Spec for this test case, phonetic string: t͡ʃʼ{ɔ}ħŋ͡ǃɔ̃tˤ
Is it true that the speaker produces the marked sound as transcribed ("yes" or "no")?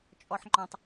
yes